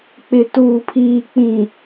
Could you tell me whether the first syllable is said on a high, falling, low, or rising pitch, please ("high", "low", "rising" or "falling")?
low